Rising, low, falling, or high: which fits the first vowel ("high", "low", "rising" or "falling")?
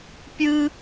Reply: high